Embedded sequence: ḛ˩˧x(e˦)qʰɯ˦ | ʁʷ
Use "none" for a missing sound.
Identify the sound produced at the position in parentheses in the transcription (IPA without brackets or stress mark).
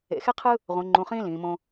e˦